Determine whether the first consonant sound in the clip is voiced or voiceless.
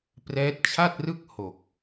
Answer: voiceless